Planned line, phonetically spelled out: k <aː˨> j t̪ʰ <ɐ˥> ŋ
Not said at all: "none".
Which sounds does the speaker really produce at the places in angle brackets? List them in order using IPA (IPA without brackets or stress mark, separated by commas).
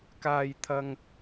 aː˥, ɐ˥